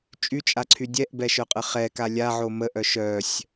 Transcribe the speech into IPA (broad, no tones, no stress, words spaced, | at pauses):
t͡ʃʼyt͡ʃʼaǀʰy dʲɛʔbɛʃœqʼə χɛka lʲaʕo məʔœ ʃœsʲ